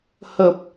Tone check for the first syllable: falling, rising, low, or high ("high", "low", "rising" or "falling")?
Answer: low